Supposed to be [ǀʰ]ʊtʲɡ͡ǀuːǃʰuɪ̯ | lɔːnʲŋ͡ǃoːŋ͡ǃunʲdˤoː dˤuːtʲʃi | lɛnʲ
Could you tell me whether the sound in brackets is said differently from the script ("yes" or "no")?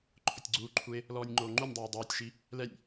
yes